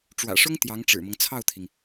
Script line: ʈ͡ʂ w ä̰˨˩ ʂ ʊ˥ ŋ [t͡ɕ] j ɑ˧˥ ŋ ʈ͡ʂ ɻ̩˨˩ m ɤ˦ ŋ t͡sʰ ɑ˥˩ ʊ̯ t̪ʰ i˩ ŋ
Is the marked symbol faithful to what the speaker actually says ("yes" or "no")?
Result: no